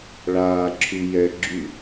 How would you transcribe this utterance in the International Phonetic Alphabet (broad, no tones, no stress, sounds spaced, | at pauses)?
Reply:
ɭ aː ǁʰ y j ɛ ɡ͡ǁ y